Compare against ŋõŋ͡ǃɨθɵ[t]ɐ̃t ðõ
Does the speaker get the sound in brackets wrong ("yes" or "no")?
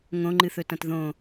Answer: no